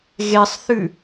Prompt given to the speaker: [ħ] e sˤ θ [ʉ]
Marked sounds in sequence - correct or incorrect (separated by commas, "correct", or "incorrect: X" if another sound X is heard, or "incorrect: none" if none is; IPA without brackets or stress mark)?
incorrect: ɣ, correct